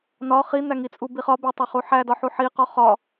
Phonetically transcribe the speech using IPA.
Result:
n ɒ χ i n̪ æ ŋ i t͡sʼ u b i χ ɒ b e tˤ æ χ u ħ æ d ɒ ħ u ħ i q ɒ χ ɒ

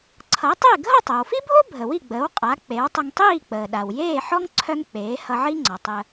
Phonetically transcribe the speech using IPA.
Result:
ǀʰ ʌ˩˥ tˤ e˥˩ ɡʱ ʌ˥˩ tˤ œ˩ w f i˥ bʱ o˥ bʱ ə˩ w i˥˩ ɡ͡b əː˩˥ w qʼ a˩˥ k͡p e˩˥ w tˤ ə˧ ŋ tˤ iː˥˩ k͡p əː˩ ɗ a˩ w j eː˥˩ ħ ɔ˥ ŋ ǀʰ œ˥ ŋ k͡p eː˩˥ h ʌ˧ ʕ i˥ ŋ͡ǀ ɔ˩ tˤ ə˧

